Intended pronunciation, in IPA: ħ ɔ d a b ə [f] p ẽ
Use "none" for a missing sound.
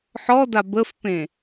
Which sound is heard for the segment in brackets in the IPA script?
f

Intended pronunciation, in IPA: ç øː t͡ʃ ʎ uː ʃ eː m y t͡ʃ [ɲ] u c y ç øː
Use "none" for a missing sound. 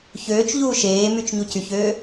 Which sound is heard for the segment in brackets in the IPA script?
ɲ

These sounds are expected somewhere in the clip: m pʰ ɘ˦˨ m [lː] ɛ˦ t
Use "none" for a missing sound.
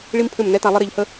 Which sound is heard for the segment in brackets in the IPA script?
n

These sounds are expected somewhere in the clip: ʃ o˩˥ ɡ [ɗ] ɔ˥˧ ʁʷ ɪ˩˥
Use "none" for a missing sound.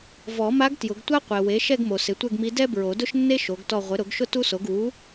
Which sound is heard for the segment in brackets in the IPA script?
t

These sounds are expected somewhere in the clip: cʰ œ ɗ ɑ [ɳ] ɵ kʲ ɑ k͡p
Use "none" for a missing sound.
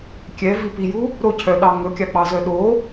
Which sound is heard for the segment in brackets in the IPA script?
ŋ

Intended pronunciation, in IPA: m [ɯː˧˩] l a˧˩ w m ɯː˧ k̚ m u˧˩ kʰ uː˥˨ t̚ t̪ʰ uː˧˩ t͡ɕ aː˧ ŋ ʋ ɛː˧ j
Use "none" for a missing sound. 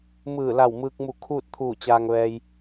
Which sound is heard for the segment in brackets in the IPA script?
ɯː˧˩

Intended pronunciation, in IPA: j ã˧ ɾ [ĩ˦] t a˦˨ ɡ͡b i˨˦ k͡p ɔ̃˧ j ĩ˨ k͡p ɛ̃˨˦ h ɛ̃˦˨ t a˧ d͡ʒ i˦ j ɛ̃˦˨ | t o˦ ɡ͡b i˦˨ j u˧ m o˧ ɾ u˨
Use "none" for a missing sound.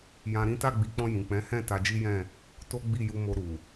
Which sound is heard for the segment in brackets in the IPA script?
ĩ˦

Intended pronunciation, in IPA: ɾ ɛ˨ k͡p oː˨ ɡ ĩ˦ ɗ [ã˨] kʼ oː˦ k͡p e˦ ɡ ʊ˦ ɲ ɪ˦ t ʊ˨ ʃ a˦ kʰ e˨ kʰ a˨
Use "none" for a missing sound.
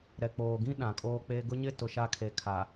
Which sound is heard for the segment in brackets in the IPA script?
ã˨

